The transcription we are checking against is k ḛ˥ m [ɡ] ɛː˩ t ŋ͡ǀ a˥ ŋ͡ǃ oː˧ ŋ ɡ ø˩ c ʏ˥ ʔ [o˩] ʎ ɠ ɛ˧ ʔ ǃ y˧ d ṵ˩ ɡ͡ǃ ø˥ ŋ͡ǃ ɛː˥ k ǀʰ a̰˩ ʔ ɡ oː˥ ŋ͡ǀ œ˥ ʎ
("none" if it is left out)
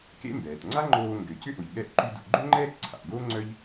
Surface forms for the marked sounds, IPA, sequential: b, o˩

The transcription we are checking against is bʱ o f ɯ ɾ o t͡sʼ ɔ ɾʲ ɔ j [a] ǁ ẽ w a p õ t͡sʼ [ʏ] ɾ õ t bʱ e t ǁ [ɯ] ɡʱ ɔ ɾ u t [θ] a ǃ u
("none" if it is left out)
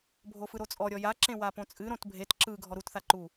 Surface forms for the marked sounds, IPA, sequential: a, ɨ, ɯ, θ

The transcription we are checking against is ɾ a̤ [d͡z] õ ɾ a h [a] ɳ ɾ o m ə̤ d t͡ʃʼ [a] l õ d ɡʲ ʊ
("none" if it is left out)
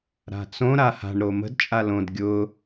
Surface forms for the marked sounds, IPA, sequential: t͡s, a̤, a

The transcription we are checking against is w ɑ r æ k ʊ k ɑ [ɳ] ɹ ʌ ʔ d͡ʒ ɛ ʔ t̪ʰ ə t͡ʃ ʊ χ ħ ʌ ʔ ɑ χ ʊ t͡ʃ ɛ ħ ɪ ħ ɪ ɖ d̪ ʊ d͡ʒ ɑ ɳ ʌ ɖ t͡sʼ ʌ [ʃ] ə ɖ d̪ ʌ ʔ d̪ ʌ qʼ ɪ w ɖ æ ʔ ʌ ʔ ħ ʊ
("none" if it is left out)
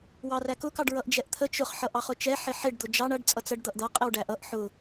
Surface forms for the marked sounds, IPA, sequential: ɖ, t͡s

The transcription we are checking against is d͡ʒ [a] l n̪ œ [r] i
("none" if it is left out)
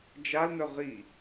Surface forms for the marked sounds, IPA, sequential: a, ʁ

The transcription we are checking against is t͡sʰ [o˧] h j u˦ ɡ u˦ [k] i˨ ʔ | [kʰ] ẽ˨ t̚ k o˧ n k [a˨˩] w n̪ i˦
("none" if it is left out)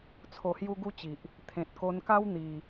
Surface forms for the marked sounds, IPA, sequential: o˧, t͡ɕ, t̪ʰ, a˦

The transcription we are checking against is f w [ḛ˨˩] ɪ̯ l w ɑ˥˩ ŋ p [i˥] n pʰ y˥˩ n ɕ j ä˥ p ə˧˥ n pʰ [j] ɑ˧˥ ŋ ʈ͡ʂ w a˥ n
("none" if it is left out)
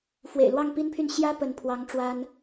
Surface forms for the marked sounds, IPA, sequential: ḛ˨˩, i˥, w

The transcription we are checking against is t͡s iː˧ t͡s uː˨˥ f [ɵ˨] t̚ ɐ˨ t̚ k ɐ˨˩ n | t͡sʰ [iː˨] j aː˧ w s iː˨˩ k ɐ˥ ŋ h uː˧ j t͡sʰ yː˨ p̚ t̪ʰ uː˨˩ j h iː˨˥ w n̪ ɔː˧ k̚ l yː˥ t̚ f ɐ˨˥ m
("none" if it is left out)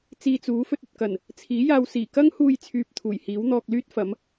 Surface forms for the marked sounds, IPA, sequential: ɵ˧, iː˨˥

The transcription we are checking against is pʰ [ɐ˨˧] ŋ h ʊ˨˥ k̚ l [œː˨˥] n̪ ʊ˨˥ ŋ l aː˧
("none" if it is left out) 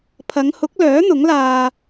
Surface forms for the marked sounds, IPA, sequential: ɐ˨˧, œː˨˥

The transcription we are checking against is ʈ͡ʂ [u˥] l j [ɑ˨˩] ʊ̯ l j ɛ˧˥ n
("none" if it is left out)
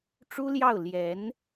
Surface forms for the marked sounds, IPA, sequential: u˥, ɑ˥˩

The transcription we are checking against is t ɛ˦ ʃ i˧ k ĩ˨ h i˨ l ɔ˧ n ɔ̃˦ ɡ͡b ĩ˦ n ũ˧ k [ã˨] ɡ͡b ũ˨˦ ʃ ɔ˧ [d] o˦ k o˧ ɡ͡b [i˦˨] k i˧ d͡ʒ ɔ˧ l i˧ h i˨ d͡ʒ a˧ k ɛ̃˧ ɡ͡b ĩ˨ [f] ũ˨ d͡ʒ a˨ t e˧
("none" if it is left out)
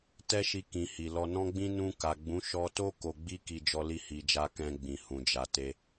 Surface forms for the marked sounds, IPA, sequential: a˨, t, i˦, h

